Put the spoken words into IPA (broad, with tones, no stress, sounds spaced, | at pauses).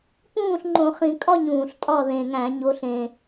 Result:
p ũː˥˨ ɬ ŋ͡ǃ õ˧˩˧ χ ĩ˧˩˧ kʼ ɒ˥˨ ɲ ũː˨˩ ɬ tʼ ɒ˥˨ ð ẽ˨˩ ŋ æ̃˧˩˧ ɲ o˨˦ ɬ ẽː˨˩